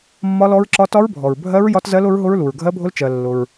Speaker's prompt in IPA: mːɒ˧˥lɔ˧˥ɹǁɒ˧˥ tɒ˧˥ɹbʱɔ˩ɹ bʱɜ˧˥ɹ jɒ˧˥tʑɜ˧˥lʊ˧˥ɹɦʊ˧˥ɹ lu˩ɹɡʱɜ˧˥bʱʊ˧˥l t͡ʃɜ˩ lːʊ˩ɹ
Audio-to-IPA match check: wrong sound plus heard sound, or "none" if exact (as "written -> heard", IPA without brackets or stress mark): ʑ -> z